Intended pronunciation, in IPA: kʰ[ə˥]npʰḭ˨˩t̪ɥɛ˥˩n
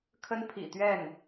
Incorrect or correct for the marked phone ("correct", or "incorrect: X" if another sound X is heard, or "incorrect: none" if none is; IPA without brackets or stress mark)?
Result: correct